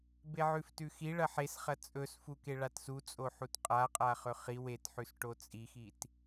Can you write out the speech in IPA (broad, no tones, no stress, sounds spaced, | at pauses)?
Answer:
b e ʕ ʉ f t ʉ x i ɭ ɐ ħ e s χ ɐ t͡sʼ ɵ s f u k e ɭ a t s u t͡sʼ o ħ u t qʼ a qʼ a χ ɵ χ i w e t ħ ʉ s ʈ o t͡sʼ i x i t